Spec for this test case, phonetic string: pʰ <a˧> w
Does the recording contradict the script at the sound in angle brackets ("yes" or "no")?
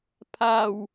yes